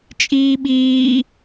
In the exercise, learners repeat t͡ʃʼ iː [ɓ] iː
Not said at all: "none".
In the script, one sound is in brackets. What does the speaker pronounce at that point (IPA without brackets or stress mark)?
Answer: ɓ